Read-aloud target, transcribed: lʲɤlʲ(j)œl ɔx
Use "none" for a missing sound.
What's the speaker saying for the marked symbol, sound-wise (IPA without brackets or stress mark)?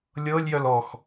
j